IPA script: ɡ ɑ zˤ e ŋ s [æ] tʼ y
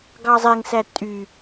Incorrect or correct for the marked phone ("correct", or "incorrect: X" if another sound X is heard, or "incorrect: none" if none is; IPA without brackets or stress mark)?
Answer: correct